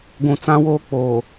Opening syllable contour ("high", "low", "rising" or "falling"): low